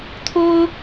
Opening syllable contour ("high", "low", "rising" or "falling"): high